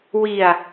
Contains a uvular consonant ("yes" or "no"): no